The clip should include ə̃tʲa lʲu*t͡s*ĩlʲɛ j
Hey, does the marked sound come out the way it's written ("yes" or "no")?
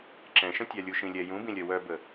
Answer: no